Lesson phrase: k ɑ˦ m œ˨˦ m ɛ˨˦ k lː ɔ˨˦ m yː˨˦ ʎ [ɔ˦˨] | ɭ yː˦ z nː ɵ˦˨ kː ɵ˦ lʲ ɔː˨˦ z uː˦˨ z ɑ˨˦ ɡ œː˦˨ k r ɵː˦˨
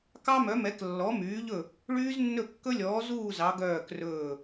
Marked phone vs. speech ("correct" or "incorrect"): incorrect